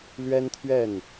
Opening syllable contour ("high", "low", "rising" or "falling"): high